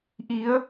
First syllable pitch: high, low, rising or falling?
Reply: rising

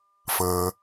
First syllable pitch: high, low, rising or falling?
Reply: low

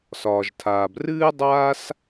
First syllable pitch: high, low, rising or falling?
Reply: low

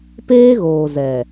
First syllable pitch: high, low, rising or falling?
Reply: high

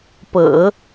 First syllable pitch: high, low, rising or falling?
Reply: low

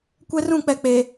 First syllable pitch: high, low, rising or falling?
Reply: high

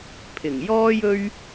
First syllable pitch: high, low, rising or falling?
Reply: low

